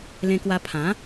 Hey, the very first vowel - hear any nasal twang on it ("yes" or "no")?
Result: yes